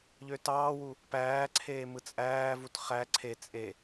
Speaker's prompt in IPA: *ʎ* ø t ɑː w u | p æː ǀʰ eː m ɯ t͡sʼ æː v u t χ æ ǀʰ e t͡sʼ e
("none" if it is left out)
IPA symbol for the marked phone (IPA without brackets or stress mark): ʎ